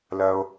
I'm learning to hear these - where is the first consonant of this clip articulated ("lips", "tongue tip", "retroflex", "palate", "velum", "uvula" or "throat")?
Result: tongue tip